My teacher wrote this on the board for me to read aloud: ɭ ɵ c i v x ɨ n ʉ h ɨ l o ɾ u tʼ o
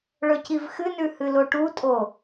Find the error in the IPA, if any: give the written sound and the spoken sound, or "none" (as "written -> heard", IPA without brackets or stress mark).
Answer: ɾ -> ʈ